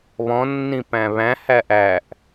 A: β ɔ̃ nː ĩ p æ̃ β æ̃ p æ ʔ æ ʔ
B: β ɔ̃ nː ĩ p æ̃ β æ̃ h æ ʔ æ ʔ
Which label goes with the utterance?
B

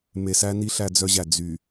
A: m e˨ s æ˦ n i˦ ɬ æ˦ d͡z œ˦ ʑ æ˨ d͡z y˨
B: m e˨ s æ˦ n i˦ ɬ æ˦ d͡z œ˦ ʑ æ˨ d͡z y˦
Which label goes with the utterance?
A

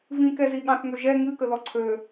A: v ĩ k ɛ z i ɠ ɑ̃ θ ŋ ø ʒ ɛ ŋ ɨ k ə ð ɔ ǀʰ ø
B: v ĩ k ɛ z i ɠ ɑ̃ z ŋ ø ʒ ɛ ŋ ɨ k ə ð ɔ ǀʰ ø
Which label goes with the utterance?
A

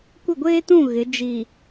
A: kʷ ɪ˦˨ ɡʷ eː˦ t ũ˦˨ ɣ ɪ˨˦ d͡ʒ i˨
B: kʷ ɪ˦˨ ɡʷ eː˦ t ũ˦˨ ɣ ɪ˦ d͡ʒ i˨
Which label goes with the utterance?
A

